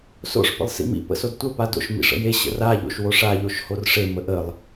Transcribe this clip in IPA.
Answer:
s o̰ ʂ p ə̰ lˠ s ḭ m ḭ p ə̰ s o d tʷ ə p a d o̰ ʃ m ḭ ʂ ə̰ j e ɕ ə̰ r a ʎ o̰ ʃ w o ʂ a ʎ o ʃ h o r ʂ e m ə ʔ ə lˠ

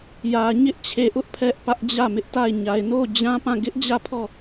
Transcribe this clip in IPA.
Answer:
j ä˨ ɲ ɪ˦ ʔ t͡ɕʰ e˨ ʔ ʊ˦ ʔ pʰ ɛ˦ ʔ p ä˦ ʔ d͡ʑ ä˦˨ m ɪ˦ ʔ t a˦˨ ɪ̯ ɲ a˨ ɪ̯ n o˦˨ d͡ʑ ã˦ p ã˦˨ ɡ ɪ˦ ʔ d͡ʑ ä˦˨ pʰ ɔ˦˨

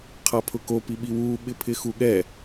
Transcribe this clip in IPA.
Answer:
qʰ a pʰ ʊ k o p i ɓ i w u ɓ ɪ pʰ ɪ x u ɠ ɛ

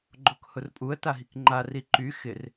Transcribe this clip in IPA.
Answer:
ɡ͡ǃ o k h ʊ r pʼ u ə̯ t a ɦ i k ŋ͡ǃ a r i ǃ y x ɪ r

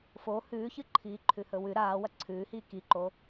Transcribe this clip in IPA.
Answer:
f o h ʉː ç ɨ ǃʰ iː ǃʰ ʉ h ɵ w ʉ ɾ aː w ɐ ǀʰ ʉː h iː k i ǃ o

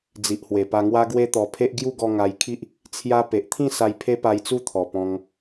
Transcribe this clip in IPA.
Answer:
d͡z i˨ ʔ h w e˨˩ p a˧ ŋ w a˦ ɡ w e˦ t̪ ɔ˧ pʰ e˦ ʔ ɡ j u˥˧ ɡ ɔ˧ ŋ a˧ j kʰ i˦ ʔ | t͡sʰ j a˦ p e˨ ʔ t̪ʰ ĩ˥˧ s a˧ j pʰ e˦ p a˧ j t͡s u˥˧ t̪ʰ ɔ˨˩ p ɔ̃˧ ŋ

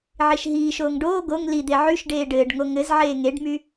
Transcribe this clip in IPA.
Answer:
ʕ i ʃ ɦ iː ʃ oː ŋ ɖ oː ɡ o ŋ l i d̪ e ʕ y ʃ ɖ eː ɖ ɘː ɖ ŋ o ŋ ɘ z ʕ eː ŋ e ɖ m y

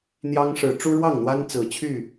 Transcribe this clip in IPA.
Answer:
n̪ j ɑ˦ ŋ ʂ ɻ̩˨˦ ʈ͡ʂ u˦ ɻ w ɑ˥˨ ŋ n̪ w a˦ n t͡s ɹ̩˨˦ t͡ɕʰ y˥˨

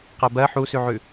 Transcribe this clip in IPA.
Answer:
q ɜ b ɜ ħ u s ʉ ʕ ʉ

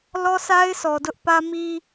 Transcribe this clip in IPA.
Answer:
l ɔ˦ sʰ a˦ ɪ̯ sʰ ɔ˨ d ʊ˦ ʔ p ä˦ m i˦

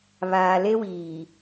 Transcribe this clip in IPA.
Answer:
β aː˨ l e˦ w iː˨

